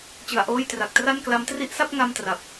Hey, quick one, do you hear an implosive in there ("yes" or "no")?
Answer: no